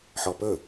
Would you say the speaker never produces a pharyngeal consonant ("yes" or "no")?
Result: no